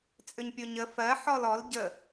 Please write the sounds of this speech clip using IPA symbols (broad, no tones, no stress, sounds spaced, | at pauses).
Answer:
t͡sʼ ʏ ɲ pʲ o ɲ ə f ɜ ħ ɔ l ɔ l ɟ ə